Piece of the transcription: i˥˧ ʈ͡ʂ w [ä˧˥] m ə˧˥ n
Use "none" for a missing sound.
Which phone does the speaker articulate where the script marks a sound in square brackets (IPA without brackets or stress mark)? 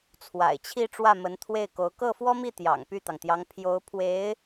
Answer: ä˥˩